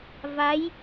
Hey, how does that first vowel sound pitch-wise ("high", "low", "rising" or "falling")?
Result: rising